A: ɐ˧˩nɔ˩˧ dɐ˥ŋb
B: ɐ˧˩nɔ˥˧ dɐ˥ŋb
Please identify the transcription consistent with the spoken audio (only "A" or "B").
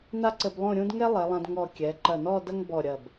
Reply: B